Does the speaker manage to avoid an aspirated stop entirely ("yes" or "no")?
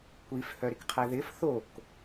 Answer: no